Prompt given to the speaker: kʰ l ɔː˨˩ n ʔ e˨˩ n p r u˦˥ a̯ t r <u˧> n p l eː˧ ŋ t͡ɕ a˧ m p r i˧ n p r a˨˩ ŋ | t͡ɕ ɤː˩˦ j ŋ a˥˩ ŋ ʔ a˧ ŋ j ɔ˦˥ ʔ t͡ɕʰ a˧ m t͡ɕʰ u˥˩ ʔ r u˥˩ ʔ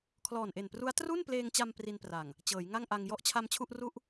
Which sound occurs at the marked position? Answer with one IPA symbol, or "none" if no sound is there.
u˥˩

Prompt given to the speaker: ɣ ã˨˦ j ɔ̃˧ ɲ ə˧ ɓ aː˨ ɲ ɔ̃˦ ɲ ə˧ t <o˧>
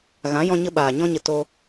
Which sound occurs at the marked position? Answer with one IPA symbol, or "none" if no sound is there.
o˦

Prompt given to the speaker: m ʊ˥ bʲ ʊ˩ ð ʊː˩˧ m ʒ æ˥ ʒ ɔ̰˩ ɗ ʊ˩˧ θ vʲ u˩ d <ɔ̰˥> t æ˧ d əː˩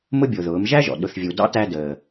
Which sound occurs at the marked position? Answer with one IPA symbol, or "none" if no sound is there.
ɑ̰˥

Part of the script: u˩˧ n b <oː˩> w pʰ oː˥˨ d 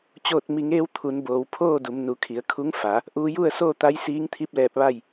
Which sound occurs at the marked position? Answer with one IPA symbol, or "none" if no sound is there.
oː˩˧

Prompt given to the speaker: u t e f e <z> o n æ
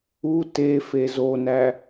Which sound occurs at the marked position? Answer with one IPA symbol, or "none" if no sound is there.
z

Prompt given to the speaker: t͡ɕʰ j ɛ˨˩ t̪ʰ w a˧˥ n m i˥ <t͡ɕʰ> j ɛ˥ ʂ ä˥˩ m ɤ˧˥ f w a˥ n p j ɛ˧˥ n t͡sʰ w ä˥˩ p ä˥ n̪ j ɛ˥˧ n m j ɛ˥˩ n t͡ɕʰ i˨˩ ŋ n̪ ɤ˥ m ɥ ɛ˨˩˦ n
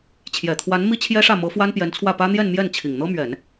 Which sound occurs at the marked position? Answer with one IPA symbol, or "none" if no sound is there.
t͡ɕʰ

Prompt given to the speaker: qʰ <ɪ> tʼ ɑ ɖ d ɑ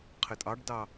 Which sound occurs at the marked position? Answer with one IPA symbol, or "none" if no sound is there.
ɪ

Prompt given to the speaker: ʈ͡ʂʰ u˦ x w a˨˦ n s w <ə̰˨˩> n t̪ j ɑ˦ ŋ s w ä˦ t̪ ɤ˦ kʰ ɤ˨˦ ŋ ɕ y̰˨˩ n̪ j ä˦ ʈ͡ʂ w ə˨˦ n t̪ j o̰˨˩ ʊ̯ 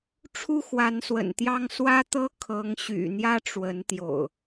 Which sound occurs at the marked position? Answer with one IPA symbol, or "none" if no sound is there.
ə̰˨˩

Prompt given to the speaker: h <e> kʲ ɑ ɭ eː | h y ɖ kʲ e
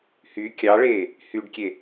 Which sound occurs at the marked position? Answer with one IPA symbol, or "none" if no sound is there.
y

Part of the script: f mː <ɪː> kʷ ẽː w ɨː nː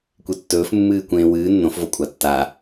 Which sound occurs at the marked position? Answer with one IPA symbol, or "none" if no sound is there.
ɨː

